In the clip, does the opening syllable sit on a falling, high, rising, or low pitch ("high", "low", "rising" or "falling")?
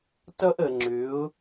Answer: high